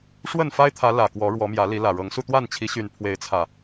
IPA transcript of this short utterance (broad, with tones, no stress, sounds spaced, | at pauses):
ʂ w ə˥˨ n f a˦ ɪ̯ t̪ʰ ä˨˦ l ä˨˩ k w ɔ˨˦ ɻ w ɔ˨˦ m j ä˨˦ l i˨˦ l ä˨˩ ɻ ɤ˨˦ ŋ s u˧ t̪ w a˥˨ n t͡ɕʰ i˨˦ ɕ y˨˩ n pʰ w e˨˦ ɪ̯ t͡sʰ ä˨˩